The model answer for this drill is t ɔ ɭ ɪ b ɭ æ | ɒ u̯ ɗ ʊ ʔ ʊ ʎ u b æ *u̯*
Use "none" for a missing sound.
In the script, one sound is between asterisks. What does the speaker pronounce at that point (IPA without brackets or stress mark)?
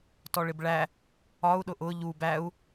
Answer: u̯